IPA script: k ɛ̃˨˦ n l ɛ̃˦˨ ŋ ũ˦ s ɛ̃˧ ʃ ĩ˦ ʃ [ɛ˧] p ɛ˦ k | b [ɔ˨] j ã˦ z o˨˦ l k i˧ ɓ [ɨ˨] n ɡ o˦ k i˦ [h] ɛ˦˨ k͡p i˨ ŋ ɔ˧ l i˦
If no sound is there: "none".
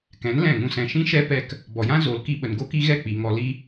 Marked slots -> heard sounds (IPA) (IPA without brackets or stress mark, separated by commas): ɛ˦, ɔ˨, ə˨, ɣ